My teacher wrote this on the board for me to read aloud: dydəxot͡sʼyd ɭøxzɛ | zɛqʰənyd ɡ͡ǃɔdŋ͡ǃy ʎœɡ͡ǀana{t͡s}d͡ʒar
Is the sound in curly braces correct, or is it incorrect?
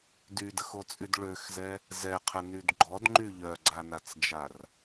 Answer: correct